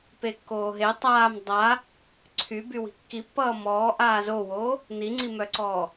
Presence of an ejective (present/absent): absent